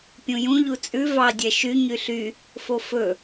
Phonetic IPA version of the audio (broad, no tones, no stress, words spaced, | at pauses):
pʲũjũ ʎut͡sʼʉ vɑ dʲɛʃy ɲyɬy | fofɵ